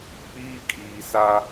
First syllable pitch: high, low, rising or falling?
high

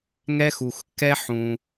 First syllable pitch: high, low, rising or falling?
high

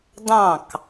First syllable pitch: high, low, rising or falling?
falling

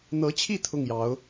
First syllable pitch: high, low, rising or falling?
rising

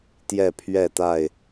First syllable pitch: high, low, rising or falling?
falling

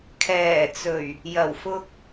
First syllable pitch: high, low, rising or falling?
low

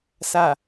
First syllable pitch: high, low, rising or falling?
low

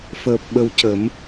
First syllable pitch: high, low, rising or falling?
low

